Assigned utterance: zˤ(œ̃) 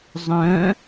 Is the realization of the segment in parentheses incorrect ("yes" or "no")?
no